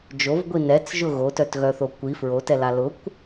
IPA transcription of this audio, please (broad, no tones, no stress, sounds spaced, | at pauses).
d͡ʒ o v ɡʷ i n ɛ t͡s ʒ ʊ ɣ o t œ t ɣ œ θ o kʷ i f ɹ o t ɛ l a l ʊ kʷ